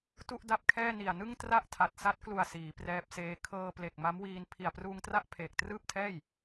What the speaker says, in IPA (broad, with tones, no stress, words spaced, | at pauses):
tu˥˩ʔda˥˩p̚kʰɛː˥˩ ni˨˩a̯nɯ˥˩ŋ tra˥˩ʔ tʰa˨˩t̚sa˦˥t̚klu˨˩a̯ siː˩˦prɛː˦˥p̚seː˦˥ kʰɤː˧ple˨˩k̚ma˦˥mwiː˧n pʰi˨˩a̯pruː˧ŋtra˥˩ʔ pʰeː˨˩k̚trɯː˥˩p̚tʰɛː˥˩j